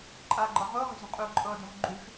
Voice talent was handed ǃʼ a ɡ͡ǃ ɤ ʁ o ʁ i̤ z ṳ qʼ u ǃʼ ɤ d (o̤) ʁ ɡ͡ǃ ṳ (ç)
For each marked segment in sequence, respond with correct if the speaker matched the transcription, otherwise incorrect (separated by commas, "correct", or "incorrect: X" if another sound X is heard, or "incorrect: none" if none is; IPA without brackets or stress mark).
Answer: correct, incorrect: ʃ